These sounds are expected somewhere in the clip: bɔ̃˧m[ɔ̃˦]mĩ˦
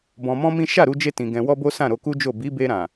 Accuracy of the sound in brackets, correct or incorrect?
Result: correct